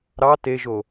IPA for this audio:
ɾ ɑ t e ʒ o

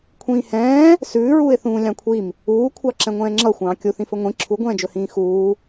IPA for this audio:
kʷʰ ĩː h ɛ̃ː | s ʉː ɹ uː ɪ̯ θ ũː lʲ ɑ̃ kʷʰ i m | uː kʷʰ ɑ ǁ ɛ̃ ŋʷ ɛ̃ː ŋ͡ǁ ʌ xʷ ɑ̃ː kʲ u θ ĩ f ɵ ŋʷ ĩ ǁʰ u ɡʷ ɛ̃ː d͡ʒ ɵ h ĩː x uː

